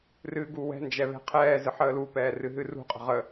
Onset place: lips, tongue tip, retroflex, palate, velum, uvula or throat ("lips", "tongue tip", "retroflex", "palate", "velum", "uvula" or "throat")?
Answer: tongue tip